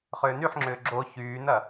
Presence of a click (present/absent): present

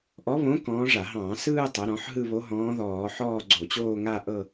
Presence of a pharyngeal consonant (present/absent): present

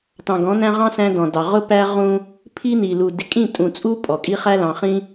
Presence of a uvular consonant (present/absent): present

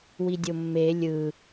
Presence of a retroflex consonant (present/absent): absent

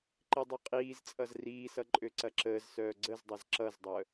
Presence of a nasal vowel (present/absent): absent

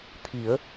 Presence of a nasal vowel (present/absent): absent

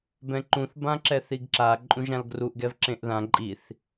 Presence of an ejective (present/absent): present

